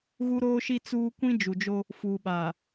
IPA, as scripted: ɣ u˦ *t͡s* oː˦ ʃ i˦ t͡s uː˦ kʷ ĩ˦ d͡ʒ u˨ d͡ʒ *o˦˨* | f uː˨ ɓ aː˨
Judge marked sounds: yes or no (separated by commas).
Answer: no, no